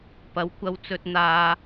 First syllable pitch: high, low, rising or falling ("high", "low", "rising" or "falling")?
rising